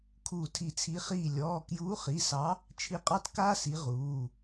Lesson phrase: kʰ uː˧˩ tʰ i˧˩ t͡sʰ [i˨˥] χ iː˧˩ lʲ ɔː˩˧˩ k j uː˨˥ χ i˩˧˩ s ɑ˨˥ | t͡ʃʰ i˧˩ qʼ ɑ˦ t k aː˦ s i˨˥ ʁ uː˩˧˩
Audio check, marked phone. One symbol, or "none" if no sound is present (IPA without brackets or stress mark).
i˨˥